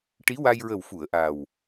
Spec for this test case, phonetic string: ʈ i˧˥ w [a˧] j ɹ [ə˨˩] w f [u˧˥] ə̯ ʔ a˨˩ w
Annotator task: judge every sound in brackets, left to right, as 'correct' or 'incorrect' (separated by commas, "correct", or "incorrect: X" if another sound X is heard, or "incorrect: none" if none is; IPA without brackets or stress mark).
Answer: correct, correct, incorrect: u˨˩˨